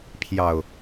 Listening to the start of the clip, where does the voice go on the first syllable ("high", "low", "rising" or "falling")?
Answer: low